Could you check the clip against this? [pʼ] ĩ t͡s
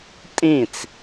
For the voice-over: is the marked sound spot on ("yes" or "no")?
no